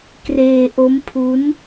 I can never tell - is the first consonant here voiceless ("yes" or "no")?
yes